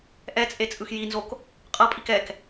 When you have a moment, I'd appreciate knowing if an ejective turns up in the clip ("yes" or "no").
yes